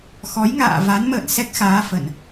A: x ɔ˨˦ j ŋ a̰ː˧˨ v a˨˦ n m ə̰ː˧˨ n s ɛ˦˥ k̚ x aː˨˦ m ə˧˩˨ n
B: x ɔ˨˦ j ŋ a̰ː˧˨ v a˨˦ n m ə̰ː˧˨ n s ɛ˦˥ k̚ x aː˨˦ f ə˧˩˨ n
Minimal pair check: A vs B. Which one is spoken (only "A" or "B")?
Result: B